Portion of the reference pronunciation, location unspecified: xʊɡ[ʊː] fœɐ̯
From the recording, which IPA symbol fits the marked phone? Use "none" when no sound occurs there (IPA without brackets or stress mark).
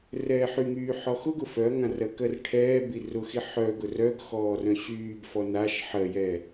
ʊ